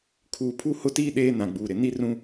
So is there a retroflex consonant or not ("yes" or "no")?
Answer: no